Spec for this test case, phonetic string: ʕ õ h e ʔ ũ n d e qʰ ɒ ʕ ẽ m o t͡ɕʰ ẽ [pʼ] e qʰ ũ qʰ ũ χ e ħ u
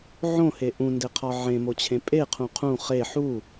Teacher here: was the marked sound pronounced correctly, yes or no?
yes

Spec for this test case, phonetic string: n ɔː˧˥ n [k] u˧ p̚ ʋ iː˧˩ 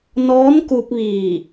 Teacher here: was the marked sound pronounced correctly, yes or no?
yes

